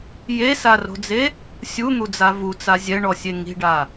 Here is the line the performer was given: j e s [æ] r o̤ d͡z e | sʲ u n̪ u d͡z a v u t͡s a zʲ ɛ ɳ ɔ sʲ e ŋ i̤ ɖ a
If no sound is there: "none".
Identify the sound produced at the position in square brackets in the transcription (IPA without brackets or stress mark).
a